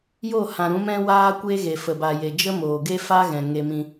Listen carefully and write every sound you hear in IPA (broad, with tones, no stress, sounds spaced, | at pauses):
j o˦˨ h ã˨ ɾ ũ˨˦ m ɛ̃˦ w aː˦ kʷ e˦ ɣ e˨ f ə˨ b a˨ j e˨ d͡ʒ ə˦ m oː˨ ɡ e˦ f a˦ ɣ ɛ̃˨ ŋ e˧ m ĩ˧